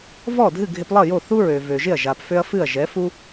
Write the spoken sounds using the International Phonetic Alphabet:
v ɔ˥˩ dʱ ɨ˥˩ ɡʱ ɪ˧ p lˠ ʌ˥˩ j o˥˩ θ u˥ ɹ ø˩ v ø˩ ʒ ɪ˥˩ ɐ̯ ʒ a˩ p f ø˧ ɐ̯ f ɨ˥˩ ɐ̯ ʒ ɛ˩˥ f u˥

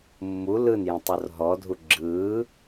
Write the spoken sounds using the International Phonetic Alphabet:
mː u l ɯ n j ə̃ tˤ o r ɦ ɔ dʱ u ɡ͡ǁ ɯː

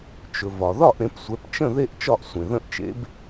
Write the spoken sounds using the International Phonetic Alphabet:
t͡ʃ ɵ˩ v ɒ˩ ð ɒ˥˩ ʔ ɾ ẽ˩˥ p sʷ ɛ˩˥ p t͡ʃ ə̃˥˩ ð e˥˩ ʔ t͡ʃ ɒ˥˩ ʔ sʷ ẽ˩ ð ə̃˥˩ ʔ t͡ʃ ḛ˩˥ b

